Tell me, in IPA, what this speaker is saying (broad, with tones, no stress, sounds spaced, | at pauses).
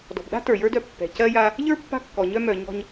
d ɔ̤˨ b ɗ a̤˥ t ə˞˨ j ə˞˥ d œ˦ pː ɛ̤˨ c ɜ˦ j a˦ | ʎ ə˞˥ pː a̤˦ kː ɔ˨ ɲ œ˦ m œ˨ ɲ ɔ̤˦ ɲ